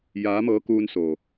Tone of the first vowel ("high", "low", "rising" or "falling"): rising